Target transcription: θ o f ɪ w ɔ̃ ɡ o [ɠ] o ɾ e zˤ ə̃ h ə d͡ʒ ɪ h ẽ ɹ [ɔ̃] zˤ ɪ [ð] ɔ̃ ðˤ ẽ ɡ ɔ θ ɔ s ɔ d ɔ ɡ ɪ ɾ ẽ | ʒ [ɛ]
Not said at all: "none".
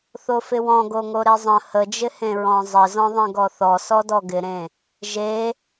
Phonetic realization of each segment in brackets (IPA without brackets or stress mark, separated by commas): ŋ, ɔ̃, z, e